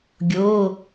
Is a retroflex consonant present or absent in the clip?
absent